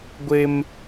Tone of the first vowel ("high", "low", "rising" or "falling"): high